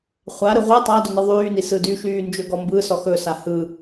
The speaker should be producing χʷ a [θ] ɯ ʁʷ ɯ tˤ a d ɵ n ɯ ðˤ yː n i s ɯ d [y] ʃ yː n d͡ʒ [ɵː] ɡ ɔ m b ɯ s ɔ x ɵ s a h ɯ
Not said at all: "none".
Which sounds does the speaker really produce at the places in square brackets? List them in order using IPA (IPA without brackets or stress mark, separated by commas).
ɾ, y, ɵ